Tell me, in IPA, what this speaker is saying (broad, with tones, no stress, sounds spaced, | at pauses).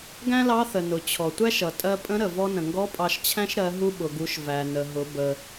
ɡ æ̃˥ l ɑ˧˥ θ ə˩ n ʊ˩ t͡ɕʰ ɔ˩ tʷ æ˥ ʃ ʌ˩ tʼ ɜ˧ pʼ ə̃˧˥ ɾ ə˩ v ɔ˧ n ə̃˩ ŋ ɡ ɔ˧˥ pʼ ɑ˧ ʃ t͡ɕʰ æ̃˥ ʃ ɾ ɜ˩˧ ɦ u˧ ɓ ʊ˩ ɡ u˩˧ ʃ v æ˩ n ə˩ ɦ ʊ˩˧ b ə˩